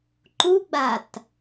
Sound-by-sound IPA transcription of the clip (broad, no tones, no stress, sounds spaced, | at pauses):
ǃ u ɡ͡b a t